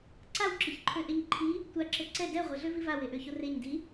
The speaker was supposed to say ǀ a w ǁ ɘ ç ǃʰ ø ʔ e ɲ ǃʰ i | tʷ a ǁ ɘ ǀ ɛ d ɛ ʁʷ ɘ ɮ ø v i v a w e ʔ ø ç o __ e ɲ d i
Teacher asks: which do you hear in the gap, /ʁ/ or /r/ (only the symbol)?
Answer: r